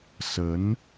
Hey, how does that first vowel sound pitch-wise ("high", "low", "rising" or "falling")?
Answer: rising